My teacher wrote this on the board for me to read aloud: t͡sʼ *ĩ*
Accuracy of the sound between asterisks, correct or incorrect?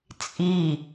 incorrect